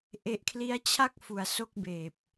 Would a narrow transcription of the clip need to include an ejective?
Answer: no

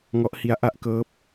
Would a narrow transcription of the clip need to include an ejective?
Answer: no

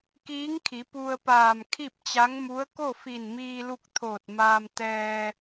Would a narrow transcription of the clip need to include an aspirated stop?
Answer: yes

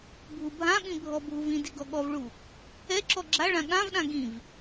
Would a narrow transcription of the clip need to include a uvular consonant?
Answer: no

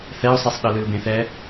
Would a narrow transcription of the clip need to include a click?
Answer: no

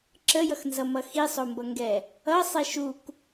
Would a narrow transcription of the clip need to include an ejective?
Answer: no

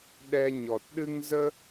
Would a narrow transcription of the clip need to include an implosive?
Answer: yes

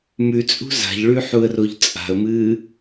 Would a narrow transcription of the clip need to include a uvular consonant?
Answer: no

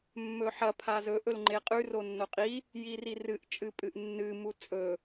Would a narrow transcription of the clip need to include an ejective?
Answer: yes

